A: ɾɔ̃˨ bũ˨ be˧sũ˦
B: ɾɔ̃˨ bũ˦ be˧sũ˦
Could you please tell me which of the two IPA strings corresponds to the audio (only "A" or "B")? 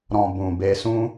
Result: A